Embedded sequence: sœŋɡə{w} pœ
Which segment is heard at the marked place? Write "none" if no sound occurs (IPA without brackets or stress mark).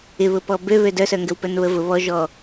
w